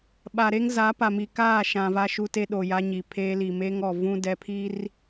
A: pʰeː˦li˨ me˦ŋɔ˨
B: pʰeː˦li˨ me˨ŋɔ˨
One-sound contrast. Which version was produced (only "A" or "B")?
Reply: A